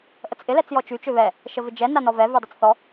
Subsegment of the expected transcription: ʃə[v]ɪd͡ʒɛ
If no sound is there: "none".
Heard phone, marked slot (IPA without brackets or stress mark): v